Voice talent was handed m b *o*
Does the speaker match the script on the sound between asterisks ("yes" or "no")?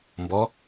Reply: no